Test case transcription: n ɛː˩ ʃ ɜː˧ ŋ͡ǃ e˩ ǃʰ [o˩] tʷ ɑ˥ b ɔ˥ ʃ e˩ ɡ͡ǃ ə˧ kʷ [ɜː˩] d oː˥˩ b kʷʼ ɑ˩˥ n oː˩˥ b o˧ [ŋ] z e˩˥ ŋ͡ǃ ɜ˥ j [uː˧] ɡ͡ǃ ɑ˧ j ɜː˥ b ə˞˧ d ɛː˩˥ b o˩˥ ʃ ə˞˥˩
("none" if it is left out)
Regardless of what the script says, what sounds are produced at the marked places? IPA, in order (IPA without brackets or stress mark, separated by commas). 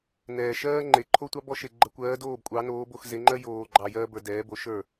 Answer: o˥, ɜː˩˥, x, oː˧